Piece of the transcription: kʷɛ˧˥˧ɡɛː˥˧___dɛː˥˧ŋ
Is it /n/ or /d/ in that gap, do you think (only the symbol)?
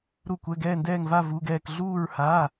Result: n